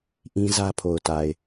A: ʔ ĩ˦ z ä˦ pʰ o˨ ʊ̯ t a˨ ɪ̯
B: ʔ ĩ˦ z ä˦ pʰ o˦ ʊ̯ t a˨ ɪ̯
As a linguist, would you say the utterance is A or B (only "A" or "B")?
A